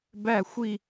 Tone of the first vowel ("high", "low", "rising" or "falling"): falling